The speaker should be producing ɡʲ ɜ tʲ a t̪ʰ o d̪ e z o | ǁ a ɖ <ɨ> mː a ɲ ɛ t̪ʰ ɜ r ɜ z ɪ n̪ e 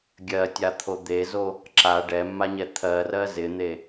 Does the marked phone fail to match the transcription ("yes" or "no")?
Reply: yes